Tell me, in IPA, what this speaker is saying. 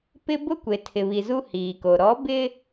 p ɪ˦ b ʊ˦ kʷ e˨ tʰ ɪ˨ β i˨ z u˦ h iː˨ k o˨ ɾ ɔ˨˦ b ɪ˦

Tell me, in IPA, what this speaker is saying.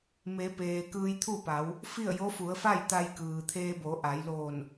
m e˩˧ p eː˩ k ɯː˧ j t̪ʰ u˥˨ p a˩˧ w | f i˥˨ ə̯ j o˧˥ f u˩˧ ə̯ f a˥˨ j t̪ a˧ j k ɯː˩ t̪ʰ eː˧ b o˩˧ ʔ a˩˧ j l oː˧˩ n

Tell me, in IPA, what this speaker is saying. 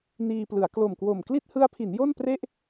n iː˧ p l ɯ˩˦ a̯ k l o˨˩ m k w o˨˩ m k l i˥˩ t̚ h ɯ˦˥ a̯ pʰ i˩˦ n j o˥˩ n p r e˥˩ ʔ

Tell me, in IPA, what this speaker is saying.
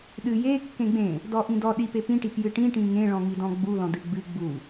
ɗ ɨ j e kː ẽ ɡ͡b ẽ | d ɔ ʔ ĩ d ɔ ɗ i p e p ĩ ʈ i p j ɨ ʈ ĩ ʈ ĩ ŋ ẽ ɭ ɔ̃ ŋ i d ɔ̃ ɡ͡b u l ɔ̃ d ɨ ɡ͡b ɨ ɡ͡b u

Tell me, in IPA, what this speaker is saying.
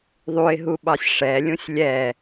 ðˤ u ɪ̯ ɦ u ɓ ɑ sʲ ʂ ɛ lʲ ũ sʲ lʲ ɛ

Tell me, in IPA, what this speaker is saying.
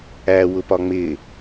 æ w ʊ p ɒ ŋ͡m ɪ

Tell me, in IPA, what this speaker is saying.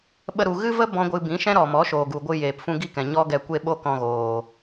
ɓ ə˧ ɾ u˨ ɣ ɨ˦ v ə˦ b ɔ̃˦ ɡʷ ɨ˧ b ĩ˨˦ ʃ ɛ̃˦ ɾ ɔ˨ m ɔ˨˦ ʃ oː˨ ɡ u˨ ɡʷ ɨ˧ j eː˨ p f ũ˧ ɡ i˦ k ɛ̃˨ ɲ ɔ˦ ɡ ɛ˧ kʷ e˦ ɓ o˦ k ɔ̃˧ ɣ oː˨

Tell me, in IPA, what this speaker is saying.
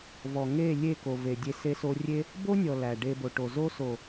v ɔ˨ ŋ e˦˨ lʲ e˦˨ k o˨ v e˨ dʲ e˧ s e˧ s o˧ rʲ e˦ | b o˦ nʲ ɔ˨ l æ˨ ɖ e˧ b o˨ ʈ o˨ z o˦ s o˨

